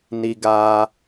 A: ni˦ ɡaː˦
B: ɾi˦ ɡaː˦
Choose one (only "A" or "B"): A